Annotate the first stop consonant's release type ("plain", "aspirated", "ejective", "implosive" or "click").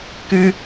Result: plain